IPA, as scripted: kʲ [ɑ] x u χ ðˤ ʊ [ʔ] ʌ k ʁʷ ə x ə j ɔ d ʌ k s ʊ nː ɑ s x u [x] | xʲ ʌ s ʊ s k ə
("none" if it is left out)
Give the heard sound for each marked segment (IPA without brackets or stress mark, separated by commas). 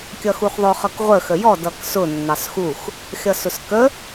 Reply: ʌ, χ, x